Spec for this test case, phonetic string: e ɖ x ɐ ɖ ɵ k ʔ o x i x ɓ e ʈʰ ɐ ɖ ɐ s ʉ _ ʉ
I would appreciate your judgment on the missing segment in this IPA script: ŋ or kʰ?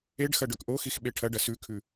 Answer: kʰ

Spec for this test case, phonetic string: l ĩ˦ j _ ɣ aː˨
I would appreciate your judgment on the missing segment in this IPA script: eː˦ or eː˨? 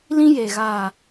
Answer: eː˨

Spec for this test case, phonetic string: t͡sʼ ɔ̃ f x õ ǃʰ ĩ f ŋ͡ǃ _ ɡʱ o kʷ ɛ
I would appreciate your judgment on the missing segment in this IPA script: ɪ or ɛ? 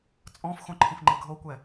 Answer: ɪ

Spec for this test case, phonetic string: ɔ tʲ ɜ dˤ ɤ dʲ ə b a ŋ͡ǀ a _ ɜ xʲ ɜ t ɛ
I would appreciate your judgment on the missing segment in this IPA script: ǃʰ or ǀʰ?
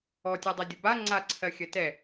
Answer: ǀʰ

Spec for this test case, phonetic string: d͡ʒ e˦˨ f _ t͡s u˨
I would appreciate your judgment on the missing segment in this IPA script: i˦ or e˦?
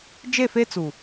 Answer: e˦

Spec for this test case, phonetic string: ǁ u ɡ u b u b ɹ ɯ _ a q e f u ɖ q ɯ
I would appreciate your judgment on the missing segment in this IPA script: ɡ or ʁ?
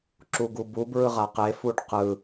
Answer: ʁ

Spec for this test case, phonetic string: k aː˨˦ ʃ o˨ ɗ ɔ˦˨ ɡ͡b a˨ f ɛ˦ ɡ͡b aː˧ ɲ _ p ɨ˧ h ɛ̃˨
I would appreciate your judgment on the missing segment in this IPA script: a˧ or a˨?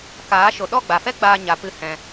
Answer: a˨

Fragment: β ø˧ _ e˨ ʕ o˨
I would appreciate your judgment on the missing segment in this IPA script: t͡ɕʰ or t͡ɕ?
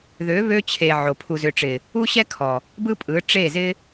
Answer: t͡ɕʰ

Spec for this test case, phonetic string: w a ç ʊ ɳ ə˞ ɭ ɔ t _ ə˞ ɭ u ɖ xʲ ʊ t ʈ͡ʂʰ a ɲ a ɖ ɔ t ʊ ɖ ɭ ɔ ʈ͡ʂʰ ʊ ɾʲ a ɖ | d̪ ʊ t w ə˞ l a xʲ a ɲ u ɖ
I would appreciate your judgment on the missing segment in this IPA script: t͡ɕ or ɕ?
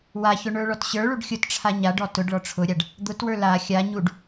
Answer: ɕ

